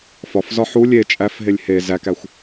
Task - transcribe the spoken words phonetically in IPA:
f ɒ f z ɒ ħ u lʲ e t͡ʃʼ æ f ɦ e lʲ h e z æ k æ xʷ

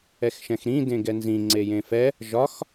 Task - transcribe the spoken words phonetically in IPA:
ɛ x ʃ ɛ̃ x ɾ ĩ d ẽ ɡ ɛ n z ĩ ŋ͡ǀ e j ẽ f ɛ | ʒ ɒ x

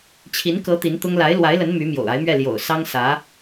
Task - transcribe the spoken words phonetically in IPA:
t͡ɕʰ i˧˥ n k ɤ˧˥ t̪ i˧˥ n t̪ ʊ˥ ŋ l a˧˥ ɪ̯ l w a˧˥ ɪ̯ l ə˧˥ n m y˧˥ m j o̰˨˩ ʊ̯ a˧˥ ɪ̯ m ɥ ɛ˥˩ l j o̰˨˩ ʊ̯ s ɑ˥ ŋ s ä˧˥

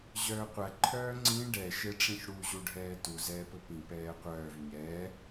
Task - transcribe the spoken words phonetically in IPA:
ʑ œː qʷ æ ǃʰ œː ŋ͡ǀ ĩ ɖ ɛ ʃ e ʈ͡ʂ ĩ ç ɽ u ʑ u ɖʱ ɛː t u z ɛː p ɵ p ĩ p ɛː qʷ œː v ɲ ɛː

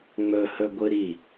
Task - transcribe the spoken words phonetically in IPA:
ŋ͡m ɵ h ɵ ɡʷ ɨ ɾ i

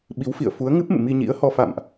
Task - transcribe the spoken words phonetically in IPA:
ɓ i˨˦ w f ḭ˧˨ ə̯ f u˨˦ ə̯ ŋ ɨ˦˥ p̚ m ɨ̰˧˨ m i˧ ɲ ḭ˧˥ ə̯ h ɔ˧ f a̰˧˨ m ʔ

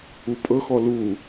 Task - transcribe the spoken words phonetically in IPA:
u pʼ ɤ x ɔ l u

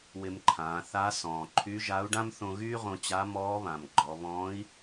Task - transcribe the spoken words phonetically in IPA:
w ɪ˧ m ǃʰ ãː˩˧ θ a˧˥ s ɔ̃ː˩ ǃʰ y˧˥ ʒ a˧˥ u̯ ɖ ã˥ m θ õ˧ ɣ yː˥ ʁ õ˧ t͡ɕ a˧˥ m ɔː˧˥ β ã˩ m ɡ͡ǃ ɔ˩˧ β ɔ̃ː˧˥ i̯

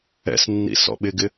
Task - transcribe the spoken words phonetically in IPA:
ɛ̰ s nː ḭ s ɔ̰ ɓ ɪ ɡ ɪ

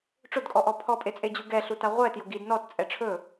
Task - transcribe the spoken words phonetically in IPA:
ʈ͡ʂ ʊ d kʼ ɔ ʔ ɔ pʰ ɔ pʼ e t͡sʼ e d͡ʑ u ɡ ɛ ɬ u t a ʁʷ ɛ t j ʊ ɡ i d n ɔ t t͡sʼ ɛ ʈ͡ʂʰ ɵ

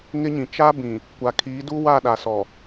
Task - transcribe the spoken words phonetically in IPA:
ŋ ɪ˦ ɲ ĩ˨ t͡ʃ a˦ b ĩ˨ | kʷ a˨ kʰ iː˨˦ d u˦ w a˦˨ ɗ a˨ s ɔ˨

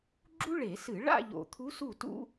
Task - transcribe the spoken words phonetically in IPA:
ɡ͡ǁ u˥ ɭ e˧˩˧ s ɨ˧˩˧ ɭ a̰˥˧ ʎ o̰˨˩ t̪ʰ u˧˥ s u˥˩ t ṵ˥

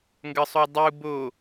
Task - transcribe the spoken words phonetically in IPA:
ŋ ɡ ə sˤ o dˤ u b o

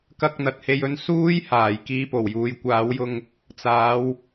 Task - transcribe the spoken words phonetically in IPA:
k ɐ˧ k̚ n̪ ɐ˨ t̚ h e˧ j ɵ˧ n s uː˥ j h aː˨˩ j k iː˧ p o˨˩ w j uː˨˧ j kʷ aː˨˥ w j ʊ˧ ŋ | t͡s aː˨˧ w

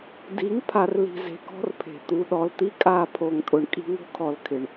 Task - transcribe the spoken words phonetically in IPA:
d i˨˦ ŋ pʰ a˨ r l i̤˨ z e̤˨ k ɔ̤˦ r pʰ e̤˨ t̪ u˨ ɗ ɔ˨ l t̪ i˦ kʼ a˦ pʰ o˨ ŋ tʼ ʊ˨ ɳ kʼ i̤˦ ŋ o̤˦ kʰ ɔ˨ l kʰ ɪ˨ ɳ

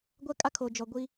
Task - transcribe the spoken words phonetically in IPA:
ɡʷ ɛ˦ kʼ a˦ kʰ o˨ d͡ʒ ɔ˨ ɡʷ i˦

